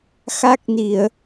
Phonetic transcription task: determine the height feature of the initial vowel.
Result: low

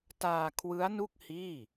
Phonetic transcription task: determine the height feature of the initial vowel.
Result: low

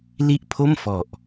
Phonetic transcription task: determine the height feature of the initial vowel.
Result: high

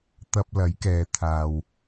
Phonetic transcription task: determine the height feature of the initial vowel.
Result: low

